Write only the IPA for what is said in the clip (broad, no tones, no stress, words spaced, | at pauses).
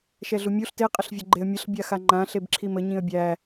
ʃɛɮumʲuɬ te qʼəɬvʲəɡ͡ǃeə̯mʲəɬ bʲaxaŋ͡ǃã ɬebǁʰimə ɲĩə̯bʲæ